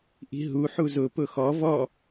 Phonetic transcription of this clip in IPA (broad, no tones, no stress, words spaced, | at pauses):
ʔi̤ɦu ħuzʊ pʊxɔ vɔ